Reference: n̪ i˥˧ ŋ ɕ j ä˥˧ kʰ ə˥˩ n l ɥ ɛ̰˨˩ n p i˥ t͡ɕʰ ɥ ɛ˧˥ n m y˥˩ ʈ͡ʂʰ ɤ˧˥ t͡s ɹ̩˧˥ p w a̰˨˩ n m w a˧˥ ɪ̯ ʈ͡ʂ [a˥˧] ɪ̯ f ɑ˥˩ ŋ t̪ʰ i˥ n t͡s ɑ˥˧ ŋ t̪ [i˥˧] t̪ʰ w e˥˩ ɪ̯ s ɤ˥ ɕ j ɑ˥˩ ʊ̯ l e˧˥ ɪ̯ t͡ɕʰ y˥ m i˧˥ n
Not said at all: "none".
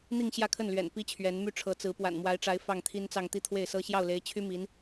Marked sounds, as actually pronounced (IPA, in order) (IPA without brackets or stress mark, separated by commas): a˧˥, i˥˧